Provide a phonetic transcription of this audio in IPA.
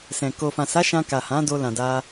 s ɛ̃˨ k o˨ f ã˨ s a˨˦ ʃ ã˧ k a˨ h ã˨˦ d o˧ l ã˨ d a˧

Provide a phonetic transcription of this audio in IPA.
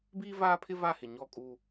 b iː˦ v aː˦ pʰ ɪ˦ v a˦˨ h ɪ˨ ɲ ɔ˦˨ kʼ u˦

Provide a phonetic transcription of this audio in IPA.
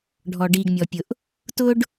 ɖʱ ɔ˩ ɖ iː˩ ɡ mʲ ɔ˩ pʲ ʊ˩ ʔ | t ʊː˥ ɖ

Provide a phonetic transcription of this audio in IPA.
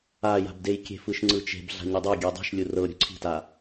a j a̤ b d e j kʲ e̤ f ɯ ʃ ŋ͡ǀ ɯ t͡ʃ e̤ b ɮ a̤ ɲ ɯ dˤ e ɡʲ ɛ dˤ ɛ̤ ʃ lʲ u r ɤ ɾʲ o̤ ǀʰ i̤ t a

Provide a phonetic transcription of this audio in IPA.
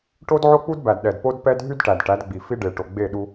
ʈ o˦ d ʕ o˦ k͡p u˦ d b æ˨ d ɗ ɛ˨ d p o˦ d p ɛ˦ d ɦ y˦ d ʈ æ˨ d ʈ æ˨˦ d ɡ͡b i˨ f i˦ ɖ e˨ ʈ o˨ ɡ͡b e˦˨ ɗ u˦

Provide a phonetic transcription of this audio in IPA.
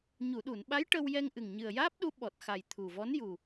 ɲ u˨˩˨ ɗ u˨˩˨ n ɓ a˧˥ j ʈ ə˧ w j ɛ˧ ŋ ʔ ɨ˨˩ ŋ ɲ ɨ˨˩ ə̯ j aː˦˥ p̚ ɗ u˧˥ ɓ ɔ˨˩ t̚ x a˨˩ j t̪ʰ u˨˩ v ɔ˧˥ n j u˨˩

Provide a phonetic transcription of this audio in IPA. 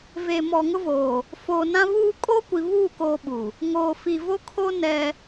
v e˨ m ɔ˨ ŋ ʊ˦ v oː˨ | f oː˨ n ã˦ β uː˦ kʼ o˦ kʷ i˨ β uː˦˨ k oː˦ ɓ u˨ | ŋ oː˨ f i˨ v o˦ kʰ o˦ n ɛ˦

